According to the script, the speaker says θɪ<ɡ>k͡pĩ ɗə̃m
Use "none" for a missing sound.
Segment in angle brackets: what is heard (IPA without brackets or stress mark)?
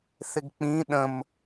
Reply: ɡ